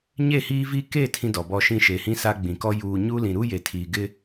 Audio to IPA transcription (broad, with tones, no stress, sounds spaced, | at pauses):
ɲ e˦˨ h iː˦ v i˦ k e˦˨ tʰ ĩ˦ d ɔ˨ b ɔ˦ ʃ ĩ˦ ʃ e˨ h ĩ˦ s a˦ ɡ͡b ĩ˨ k ɔ˦ j uː˨ ɲ uː˦ l ĩ˨ ɾ u˦ j e˨ tʰ iː˨ ɡ ɪ˦